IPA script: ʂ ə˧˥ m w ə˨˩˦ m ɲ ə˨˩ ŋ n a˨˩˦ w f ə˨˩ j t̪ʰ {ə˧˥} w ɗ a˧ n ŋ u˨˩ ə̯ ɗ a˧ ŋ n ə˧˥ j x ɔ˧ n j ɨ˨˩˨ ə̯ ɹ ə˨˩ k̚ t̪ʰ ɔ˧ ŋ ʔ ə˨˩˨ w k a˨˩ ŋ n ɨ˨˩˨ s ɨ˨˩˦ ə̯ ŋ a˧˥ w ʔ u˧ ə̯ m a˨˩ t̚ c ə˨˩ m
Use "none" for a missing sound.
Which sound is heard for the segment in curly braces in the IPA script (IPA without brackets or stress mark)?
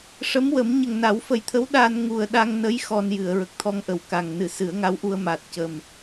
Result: ə˧˥